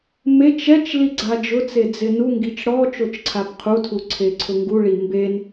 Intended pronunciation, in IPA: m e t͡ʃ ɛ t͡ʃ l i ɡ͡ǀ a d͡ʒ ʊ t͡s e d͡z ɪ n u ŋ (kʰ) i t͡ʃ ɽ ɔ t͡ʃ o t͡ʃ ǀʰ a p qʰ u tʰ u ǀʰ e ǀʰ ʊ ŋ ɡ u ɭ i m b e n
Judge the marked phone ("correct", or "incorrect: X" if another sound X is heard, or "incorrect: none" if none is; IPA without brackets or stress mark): incorrect: ɡ